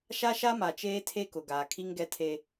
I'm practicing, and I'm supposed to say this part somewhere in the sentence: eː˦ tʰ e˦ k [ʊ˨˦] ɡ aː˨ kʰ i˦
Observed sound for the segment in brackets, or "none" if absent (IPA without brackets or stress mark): ʊ˨